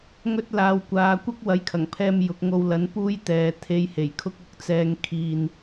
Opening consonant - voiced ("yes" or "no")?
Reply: yes